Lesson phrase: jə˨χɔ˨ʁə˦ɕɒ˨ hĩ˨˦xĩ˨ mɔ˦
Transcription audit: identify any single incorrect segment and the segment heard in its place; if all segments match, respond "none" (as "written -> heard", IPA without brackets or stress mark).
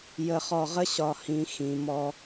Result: none